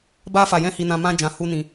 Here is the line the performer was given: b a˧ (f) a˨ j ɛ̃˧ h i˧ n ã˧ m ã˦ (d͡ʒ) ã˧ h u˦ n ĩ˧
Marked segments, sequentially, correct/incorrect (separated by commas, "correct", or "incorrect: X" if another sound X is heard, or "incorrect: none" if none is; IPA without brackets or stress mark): correct, correct